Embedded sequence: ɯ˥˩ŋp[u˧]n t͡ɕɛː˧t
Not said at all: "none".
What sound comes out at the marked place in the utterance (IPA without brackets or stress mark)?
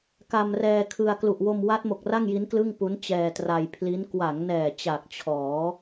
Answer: u˦˥